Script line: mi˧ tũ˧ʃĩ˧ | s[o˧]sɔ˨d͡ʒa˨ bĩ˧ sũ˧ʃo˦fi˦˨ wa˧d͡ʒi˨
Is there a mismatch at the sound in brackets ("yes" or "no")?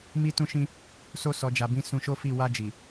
no